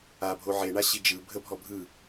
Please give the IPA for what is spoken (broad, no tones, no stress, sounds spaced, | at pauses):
a bʱ o ʕ e ɳ a ɕ i d͡ʒ ɯ bʱ ə bʱ ɔ bʱ ɯ